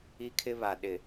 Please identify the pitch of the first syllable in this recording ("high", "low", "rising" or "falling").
high